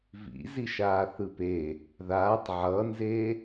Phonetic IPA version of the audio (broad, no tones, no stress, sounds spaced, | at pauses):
v ḭ z i ʃ aː θ ɯ p e | ð aː tˤ ʕ ʌ n z e